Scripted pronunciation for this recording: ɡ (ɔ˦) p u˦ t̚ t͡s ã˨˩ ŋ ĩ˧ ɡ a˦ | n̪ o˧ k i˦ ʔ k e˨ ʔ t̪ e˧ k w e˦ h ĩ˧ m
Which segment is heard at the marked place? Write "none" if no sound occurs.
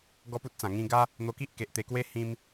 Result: ɔ˦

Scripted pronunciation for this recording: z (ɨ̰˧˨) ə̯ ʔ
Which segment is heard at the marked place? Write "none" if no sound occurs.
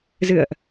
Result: ɨ̰˧˨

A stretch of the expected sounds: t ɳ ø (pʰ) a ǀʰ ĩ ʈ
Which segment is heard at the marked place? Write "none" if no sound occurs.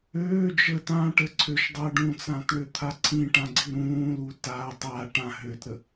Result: t̪ʰ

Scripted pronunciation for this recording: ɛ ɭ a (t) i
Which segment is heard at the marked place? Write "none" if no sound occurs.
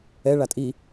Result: tʼ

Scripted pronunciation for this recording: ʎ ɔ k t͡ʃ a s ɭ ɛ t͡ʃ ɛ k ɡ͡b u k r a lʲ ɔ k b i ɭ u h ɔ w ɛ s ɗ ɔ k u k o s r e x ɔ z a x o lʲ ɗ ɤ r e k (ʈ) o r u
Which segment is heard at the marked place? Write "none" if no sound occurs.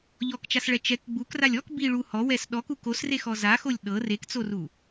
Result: t͡s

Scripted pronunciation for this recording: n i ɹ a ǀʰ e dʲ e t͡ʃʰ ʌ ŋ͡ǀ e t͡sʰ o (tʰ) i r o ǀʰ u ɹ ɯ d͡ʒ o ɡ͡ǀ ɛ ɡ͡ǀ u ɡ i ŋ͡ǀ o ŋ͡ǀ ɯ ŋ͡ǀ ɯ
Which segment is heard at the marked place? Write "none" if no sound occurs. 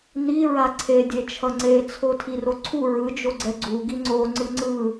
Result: tʰ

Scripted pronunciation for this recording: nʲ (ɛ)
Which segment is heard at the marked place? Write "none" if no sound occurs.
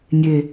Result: e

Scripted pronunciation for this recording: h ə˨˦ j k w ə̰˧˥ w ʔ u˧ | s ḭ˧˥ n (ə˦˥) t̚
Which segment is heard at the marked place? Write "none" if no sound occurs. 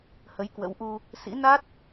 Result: a˦˥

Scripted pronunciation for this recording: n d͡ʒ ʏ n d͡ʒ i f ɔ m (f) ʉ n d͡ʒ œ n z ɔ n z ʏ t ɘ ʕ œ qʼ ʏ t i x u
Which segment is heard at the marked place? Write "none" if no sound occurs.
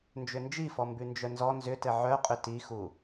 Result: b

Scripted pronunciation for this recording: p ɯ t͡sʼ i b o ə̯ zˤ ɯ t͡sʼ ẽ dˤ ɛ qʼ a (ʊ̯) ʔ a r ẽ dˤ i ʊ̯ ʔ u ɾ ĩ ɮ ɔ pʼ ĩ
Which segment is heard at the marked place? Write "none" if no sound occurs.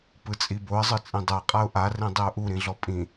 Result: ʊ̯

